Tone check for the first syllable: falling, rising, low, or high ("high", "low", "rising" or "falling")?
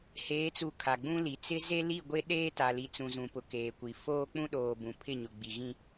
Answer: rising